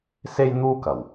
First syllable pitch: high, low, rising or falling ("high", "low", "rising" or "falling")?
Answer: high